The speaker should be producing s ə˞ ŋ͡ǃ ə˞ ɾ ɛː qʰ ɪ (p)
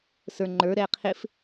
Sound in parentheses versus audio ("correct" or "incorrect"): incorrect